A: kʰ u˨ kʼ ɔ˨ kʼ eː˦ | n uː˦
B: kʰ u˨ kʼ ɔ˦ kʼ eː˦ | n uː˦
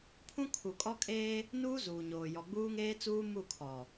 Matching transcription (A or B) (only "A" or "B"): B